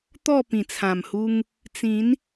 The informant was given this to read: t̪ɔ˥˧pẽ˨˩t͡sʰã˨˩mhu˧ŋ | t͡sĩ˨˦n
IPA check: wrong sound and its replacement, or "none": ẽ˨˩ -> ĩ˨˩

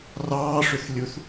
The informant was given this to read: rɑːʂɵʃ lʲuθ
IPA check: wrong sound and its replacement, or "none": ʃ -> θ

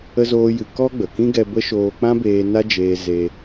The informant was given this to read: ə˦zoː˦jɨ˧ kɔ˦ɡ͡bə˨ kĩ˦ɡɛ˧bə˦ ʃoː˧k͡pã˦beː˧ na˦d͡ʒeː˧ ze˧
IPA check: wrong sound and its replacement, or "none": none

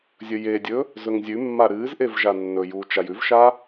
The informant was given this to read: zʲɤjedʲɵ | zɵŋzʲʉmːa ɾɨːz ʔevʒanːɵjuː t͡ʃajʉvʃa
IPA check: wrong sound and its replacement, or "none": ɤ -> ɵ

